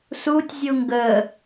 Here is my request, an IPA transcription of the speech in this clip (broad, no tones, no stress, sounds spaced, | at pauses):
s u tʲ zʲ u ŋ ɡ ə